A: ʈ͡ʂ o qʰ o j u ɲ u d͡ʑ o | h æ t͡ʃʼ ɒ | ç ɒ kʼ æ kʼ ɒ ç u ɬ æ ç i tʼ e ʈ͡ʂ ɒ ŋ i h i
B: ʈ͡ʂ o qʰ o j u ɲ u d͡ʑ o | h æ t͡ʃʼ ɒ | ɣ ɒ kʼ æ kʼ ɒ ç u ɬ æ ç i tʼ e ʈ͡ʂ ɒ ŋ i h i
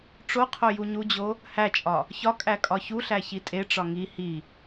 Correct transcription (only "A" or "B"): A